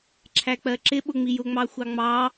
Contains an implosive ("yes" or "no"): yes